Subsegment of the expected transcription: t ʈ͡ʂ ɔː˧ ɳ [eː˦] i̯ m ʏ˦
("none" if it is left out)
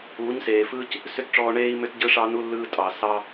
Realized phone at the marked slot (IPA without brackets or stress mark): eː˦